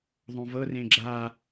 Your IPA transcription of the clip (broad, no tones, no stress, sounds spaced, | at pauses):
ðˤ õ v ɤ r ẽ ɡ͡ǁ a